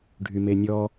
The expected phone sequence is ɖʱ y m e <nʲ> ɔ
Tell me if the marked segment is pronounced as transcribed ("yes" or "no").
yes